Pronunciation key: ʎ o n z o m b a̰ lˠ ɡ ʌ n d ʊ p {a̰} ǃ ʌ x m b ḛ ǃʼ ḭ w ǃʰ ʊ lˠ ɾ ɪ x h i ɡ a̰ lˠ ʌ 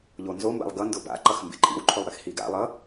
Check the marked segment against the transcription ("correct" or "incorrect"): correct